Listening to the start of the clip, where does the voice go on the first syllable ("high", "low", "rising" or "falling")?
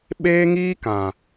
high